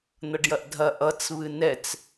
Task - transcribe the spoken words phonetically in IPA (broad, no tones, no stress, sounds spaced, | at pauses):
n̪ ʌ ɖ j ɐ ʔ dʱ ɐ ʔ ʌ t͡s β ɨ n ɛ t͡s